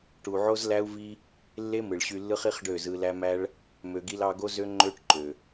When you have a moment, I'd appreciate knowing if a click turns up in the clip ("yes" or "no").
yes